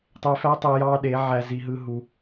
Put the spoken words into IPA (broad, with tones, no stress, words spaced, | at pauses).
tˤe˧fæ˦tˤe˧ jɑ˦ɗe˨˦ʕæ˧ zi˧ɦɯ˦ɦu˧